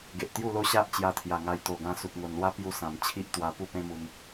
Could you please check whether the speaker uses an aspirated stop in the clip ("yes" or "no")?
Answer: yes